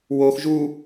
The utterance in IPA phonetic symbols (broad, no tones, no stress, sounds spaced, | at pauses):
w o x ʒ u